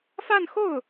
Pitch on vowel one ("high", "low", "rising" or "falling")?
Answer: falling